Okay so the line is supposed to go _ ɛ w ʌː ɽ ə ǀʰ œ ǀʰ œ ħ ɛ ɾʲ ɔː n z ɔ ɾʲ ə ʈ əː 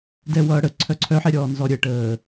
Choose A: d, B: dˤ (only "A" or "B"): A